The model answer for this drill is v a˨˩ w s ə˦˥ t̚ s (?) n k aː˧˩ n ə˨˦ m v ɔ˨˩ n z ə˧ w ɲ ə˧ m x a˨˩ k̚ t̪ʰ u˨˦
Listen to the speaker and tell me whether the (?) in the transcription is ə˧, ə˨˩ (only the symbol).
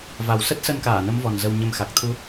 ə˧